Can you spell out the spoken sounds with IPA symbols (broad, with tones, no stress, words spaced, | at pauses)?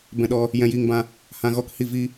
bɛ̃˧ɗɔ˧ | jɛ̃˧jiː˧ŋbã˧ | hã˧ɣɔ˦khi˦˨ vi˦